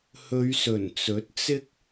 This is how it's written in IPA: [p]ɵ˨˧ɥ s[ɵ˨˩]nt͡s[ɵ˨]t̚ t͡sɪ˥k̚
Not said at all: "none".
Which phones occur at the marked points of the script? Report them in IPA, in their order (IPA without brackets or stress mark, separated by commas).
h, ɵ˨˩, ɵ˨˥